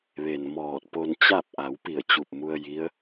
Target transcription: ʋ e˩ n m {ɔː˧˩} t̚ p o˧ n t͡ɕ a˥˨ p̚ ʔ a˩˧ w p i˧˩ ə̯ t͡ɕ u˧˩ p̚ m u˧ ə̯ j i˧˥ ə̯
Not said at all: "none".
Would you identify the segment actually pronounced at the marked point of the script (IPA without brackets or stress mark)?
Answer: ɔː˧˩